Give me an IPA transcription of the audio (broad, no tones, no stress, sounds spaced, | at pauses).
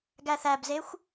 ɡ æ θ æ b z e xʷ